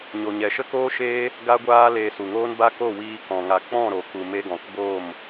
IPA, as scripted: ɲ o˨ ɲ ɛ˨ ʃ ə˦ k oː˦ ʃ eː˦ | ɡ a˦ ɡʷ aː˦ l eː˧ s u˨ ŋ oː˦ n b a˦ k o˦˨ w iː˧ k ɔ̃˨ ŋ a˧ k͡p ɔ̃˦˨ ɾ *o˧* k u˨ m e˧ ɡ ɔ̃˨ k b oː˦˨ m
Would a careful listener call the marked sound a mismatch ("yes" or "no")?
yes